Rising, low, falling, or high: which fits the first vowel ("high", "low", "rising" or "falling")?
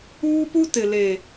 high